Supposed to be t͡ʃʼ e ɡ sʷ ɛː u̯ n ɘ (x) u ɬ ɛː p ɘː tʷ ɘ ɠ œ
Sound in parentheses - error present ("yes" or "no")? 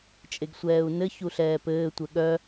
yes